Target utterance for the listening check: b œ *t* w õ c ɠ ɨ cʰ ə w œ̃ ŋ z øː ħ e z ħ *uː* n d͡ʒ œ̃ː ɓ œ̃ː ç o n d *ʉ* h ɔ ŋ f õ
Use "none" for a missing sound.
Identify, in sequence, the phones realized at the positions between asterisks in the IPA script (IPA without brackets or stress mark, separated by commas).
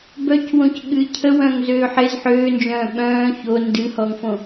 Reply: c, øː, ɨ